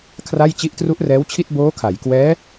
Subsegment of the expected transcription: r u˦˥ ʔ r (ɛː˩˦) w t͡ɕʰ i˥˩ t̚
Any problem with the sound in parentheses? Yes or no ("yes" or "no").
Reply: yes